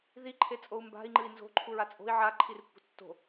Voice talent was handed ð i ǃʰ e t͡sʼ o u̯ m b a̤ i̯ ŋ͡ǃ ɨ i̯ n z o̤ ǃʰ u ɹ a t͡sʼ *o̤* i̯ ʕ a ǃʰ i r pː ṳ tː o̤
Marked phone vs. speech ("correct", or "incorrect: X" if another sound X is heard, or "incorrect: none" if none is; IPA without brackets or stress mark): correct